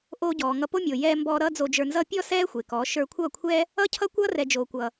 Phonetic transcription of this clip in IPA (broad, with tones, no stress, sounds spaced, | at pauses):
ʔ oː˧ ɟ ɔː˨ ŋ ʌ˧ p o˦ mʲ o˨ j ɛː˧ m b ɔː˧ ɾ ʌː˦ d͡z o˧ d͡ʒ ə˞˧ n z ʌ˦ pʲ ɔ˦ s ɛː˦ xʷ e˨ k ɔː˨˦ ʃ ə˞˧ kʷʰ ʌː˦˨ kʷʰ ɛ˦ | ʌ˦ cʰ ʌ˦ kʷ ʌː˦ r ɛ˨ d͡ʒ oː˨ kʷ ʌ˨